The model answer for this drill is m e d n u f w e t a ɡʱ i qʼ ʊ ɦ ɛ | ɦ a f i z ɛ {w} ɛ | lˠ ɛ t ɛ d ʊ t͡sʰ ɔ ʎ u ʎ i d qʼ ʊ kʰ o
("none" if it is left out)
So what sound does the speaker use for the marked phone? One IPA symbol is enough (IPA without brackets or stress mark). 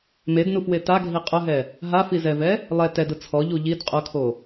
v